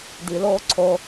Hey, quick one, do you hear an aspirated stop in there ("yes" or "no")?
yes